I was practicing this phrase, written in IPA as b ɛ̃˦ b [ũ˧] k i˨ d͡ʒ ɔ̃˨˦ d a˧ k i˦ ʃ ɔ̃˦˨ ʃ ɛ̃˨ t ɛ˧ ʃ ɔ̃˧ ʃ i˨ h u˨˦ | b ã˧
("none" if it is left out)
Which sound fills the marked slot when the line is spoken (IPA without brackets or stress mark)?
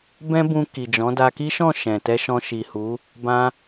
ũ˧